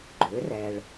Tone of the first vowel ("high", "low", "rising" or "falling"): rising